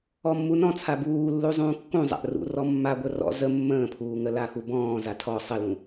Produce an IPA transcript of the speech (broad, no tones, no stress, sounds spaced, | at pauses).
ɔ mː u n ɔ̃ t͡sʰ a b uː lː u zˤ ũː kː ũ zˤ a̰ ʔ r ṵ r ɔ mː a ɡʷ ə r ɔ̰ z ə mː ə̃ː pʰ uː ŋ ə l a x u b ɔ̃ː z a tʰ ɔ sˤ ə l ũ